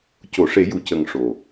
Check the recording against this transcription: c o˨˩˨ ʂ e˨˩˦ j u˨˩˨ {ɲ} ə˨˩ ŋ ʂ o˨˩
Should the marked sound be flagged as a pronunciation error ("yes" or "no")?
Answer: yes